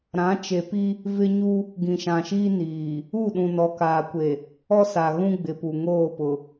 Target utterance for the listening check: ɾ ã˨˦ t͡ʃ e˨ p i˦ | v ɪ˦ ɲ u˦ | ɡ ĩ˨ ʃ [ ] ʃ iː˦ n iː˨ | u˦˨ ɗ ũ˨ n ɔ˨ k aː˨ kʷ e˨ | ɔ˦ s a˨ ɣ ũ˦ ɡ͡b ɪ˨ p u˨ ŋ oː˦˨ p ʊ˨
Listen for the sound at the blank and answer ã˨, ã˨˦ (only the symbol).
ã˨